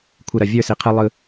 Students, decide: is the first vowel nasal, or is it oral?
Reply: oral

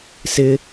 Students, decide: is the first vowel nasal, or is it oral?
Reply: oral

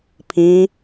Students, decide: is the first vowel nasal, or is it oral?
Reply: nasal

